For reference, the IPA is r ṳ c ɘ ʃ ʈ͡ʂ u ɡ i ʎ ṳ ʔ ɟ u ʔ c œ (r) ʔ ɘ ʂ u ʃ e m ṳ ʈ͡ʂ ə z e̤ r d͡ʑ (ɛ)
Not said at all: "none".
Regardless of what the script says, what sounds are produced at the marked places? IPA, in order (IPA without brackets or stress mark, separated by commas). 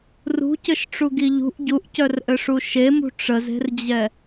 r, ɛ